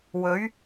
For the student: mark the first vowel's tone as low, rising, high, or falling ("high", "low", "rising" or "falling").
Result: rising